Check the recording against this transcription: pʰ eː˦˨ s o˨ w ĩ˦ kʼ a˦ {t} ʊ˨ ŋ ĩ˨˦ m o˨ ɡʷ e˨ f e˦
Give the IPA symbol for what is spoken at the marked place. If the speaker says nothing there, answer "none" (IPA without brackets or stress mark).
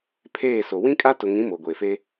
t